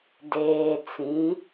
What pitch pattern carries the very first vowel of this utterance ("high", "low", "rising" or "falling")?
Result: low